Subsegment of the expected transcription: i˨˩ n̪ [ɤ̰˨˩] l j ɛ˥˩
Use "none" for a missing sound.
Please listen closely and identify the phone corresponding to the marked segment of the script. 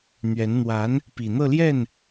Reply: ɤ˥˧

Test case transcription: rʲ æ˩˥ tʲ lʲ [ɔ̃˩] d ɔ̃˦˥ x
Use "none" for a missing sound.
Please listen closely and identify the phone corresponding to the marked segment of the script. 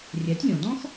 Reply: ɔ̃˩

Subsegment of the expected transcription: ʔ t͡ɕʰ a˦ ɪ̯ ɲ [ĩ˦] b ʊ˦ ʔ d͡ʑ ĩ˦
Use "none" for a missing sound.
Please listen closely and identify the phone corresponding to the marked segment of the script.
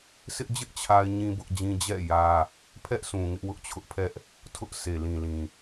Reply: ĩ˦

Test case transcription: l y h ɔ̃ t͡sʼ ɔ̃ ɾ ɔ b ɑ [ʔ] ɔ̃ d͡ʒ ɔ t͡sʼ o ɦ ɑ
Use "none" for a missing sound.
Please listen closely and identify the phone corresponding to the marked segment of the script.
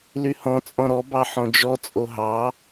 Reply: ħ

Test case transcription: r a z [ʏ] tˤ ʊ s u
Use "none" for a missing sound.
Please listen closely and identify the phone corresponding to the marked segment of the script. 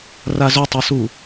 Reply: ʏ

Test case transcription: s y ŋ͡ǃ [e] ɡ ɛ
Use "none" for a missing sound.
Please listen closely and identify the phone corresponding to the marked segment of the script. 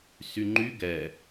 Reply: y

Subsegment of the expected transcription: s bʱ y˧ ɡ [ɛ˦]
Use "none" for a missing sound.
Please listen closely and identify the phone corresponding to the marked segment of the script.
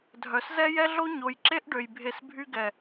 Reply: ɛ˨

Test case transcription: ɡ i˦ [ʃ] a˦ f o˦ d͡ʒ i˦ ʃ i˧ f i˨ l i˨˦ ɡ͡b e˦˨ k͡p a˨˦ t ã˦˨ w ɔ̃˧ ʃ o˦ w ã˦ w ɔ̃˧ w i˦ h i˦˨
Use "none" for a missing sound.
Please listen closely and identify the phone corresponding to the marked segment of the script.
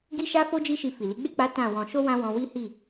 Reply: ʃ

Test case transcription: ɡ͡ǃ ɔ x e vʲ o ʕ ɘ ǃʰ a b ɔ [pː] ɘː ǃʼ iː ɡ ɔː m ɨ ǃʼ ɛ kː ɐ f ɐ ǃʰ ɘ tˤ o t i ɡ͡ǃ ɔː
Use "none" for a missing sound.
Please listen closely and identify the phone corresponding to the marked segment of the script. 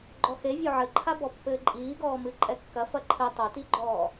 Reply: pː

